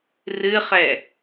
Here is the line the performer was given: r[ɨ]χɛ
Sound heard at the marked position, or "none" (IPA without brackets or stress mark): ɨ